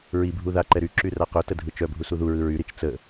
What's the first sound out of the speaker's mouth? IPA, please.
ɹ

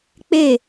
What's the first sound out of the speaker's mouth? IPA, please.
k͡p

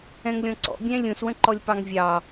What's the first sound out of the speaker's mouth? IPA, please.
ɛ̃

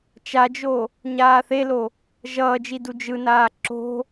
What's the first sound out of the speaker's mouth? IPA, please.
t͡ʃ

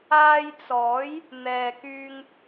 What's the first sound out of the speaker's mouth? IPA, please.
aː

